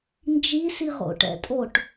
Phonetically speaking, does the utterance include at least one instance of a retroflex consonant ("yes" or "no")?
yes